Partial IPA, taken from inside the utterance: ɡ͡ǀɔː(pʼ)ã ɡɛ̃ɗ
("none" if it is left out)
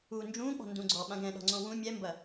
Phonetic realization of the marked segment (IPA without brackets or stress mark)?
ɓ